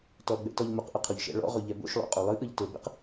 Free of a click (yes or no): yes